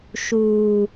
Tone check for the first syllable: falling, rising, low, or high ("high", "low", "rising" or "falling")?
low